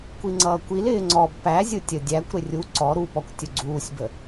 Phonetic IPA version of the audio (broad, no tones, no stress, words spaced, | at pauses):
kʷiŋ͡ǀʌːkʷil ɪːŋ͡ǀɔb pæzʲʊ tʲədʲækʷ ɾɪrʲu ǀɔ ɾupɔkʷ tʲʊɡ͡ǀuːsʲbə